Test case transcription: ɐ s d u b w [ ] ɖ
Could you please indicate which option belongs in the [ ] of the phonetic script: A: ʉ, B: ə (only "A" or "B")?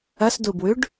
A